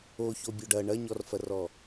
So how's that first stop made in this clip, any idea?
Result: plain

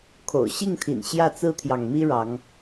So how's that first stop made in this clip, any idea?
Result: aspirated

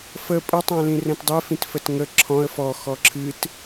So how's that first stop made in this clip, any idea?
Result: ejective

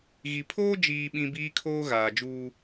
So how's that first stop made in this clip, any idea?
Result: aspirated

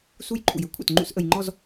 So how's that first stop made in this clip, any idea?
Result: click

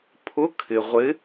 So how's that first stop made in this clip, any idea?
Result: aspirated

